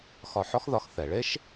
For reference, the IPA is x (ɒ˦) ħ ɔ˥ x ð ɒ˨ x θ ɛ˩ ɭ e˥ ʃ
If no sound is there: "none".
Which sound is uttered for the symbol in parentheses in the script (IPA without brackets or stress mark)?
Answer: ɒ˨